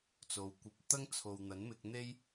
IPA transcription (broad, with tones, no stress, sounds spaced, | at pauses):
t͡s o˨˧ w kʷ ɐ˧ p̚ t̪ ɐ˥ ŋ t͡sʰ o˨ w n̪ ɐ˨˥ n m ɪ˧ k̚ n̪ e˥ j